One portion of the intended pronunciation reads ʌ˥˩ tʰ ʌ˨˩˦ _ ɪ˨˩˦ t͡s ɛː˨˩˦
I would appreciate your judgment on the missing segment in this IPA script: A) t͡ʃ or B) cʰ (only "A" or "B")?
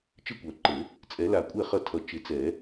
A